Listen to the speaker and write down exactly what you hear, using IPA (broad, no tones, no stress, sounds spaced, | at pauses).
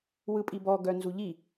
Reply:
w ɯ pʼ i b ɔ ɡ œ n z u ʎ i